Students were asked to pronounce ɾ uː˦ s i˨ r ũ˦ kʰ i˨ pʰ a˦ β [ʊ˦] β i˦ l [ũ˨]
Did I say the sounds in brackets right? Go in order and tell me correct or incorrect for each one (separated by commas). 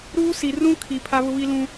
correct, incorrect